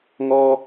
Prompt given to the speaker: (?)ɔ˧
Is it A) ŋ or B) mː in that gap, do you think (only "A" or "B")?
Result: A